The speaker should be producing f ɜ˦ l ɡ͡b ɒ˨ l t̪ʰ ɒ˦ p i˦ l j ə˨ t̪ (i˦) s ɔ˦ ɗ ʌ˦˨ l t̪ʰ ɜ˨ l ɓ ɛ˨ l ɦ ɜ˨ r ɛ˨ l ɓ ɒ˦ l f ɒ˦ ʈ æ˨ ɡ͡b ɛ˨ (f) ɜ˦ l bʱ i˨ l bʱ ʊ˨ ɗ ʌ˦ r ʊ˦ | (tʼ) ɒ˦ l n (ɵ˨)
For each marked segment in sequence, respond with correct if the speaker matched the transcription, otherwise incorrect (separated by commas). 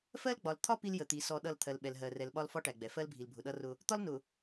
incorrect, correct, incorrect, incorrect